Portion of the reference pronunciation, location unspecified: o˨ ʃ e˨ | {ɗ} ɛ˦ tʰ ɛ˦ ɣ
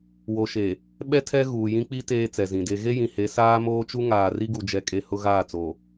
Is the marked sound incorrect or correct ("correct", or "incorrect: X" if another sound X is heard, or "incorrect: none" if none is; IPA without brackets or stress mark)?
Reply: incorrect: ɓ